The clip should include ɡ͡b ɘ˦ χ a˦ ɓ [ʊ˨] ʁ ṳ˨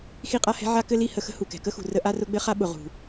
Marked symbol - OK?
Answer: yes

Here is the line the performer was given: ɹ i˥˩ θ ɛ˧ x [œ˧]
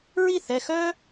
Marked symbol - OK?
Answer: no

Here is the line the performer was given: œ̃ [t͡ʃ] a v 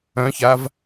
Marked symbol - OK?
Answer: no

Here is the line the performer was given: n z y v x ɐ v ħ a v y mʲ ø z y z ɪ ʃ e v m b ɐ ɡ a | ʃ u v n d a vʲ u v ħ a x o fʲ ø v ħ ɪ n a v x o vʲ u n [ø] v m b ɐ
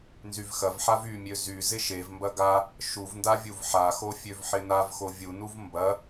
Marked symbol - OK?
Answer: no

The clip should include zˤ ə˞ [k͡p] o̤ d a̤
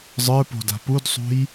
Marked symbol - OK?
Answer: no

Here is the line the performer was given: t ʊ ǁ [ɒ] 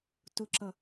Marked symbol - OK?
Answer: no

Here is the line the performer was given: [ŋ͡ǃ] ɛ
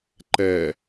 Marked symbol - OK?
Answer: no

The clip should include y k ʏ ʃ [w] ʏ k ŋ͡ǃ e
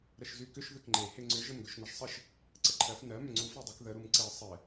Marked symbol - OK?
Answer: no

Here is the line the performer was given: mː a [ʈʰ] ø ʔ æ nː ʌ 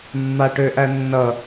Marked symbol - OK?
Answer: no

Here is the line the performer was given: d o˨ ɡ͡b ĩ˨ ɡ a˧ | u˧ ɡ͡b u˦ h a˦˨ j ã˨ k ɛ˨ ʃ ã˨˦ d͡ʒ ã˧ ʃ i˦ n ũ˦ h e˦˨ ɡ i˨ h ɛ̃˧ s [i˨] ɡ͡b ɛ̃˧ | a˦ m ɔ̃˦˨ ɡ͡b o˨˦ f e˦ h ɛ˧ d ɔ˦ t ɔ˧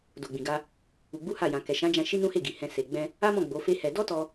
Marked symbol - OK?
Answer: no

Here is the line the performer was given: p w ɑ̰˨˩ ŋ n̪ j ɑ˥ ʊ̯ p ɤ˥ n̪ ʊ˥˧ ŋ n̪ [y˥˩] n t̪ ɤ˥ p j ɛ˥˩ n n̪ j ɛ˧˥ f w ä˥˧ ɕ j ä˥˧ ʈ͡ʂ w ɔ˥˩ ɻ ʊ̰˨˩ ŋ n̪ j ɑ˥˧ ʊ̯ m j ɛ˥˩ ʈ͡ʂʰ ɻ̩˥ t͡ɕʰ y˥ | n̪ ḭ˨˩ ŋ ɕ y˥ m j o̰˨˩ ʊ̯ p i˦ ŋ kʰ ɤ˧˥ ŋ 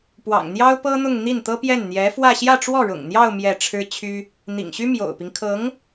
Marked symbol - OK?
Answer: no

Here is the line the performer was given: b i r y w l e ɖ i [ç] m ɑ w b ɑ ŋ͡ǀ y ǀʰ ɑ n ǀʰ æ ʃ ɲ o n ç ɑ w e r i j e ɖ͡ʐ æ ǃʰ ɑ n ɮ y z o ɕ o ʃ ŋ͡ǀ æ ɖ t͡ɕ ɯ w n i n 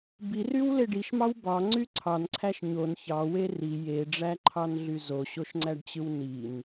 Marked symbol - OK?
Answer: no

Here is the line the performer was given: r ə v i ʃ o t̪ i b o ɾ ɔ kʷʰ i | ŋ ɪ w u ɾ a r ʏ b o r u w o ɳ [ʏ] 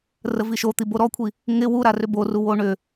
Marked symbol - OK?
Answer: yes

